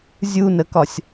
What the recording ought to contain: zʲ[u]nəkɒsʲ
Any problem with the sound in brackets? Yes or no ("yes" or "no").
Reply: no